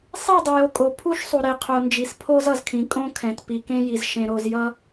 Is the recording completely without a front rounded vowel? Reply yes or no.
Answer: yes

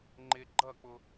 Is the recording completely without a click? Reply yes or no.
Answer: no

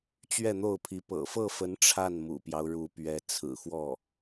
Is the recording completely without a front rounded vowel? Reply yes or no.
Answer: yes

